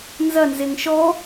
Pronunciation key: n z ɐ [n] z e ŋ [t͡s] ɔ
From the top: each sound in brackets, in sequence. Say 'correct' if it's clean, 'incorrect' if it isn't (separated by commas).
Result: correct, incorrect